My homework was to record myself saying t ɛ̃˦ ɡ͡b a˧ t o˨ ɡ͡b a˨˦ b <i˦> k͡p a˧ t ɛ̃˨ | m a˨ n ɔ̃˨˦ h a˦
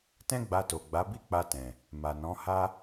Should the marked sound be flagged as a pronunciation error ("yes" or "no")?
no